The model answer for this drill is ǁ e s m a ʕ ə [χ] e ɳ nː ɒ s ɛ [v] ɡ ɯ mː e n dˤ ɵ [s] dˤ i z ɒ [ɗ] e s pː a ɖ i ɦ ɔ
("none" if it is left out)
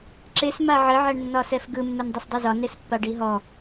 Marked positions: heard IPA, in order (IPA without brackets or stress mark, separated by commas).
ʕ, f, s, n